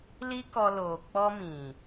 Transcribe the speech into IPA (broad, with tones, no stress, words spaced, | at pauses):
li˦kɔ˧ loː˨k͡pɔ˧ mĩ˨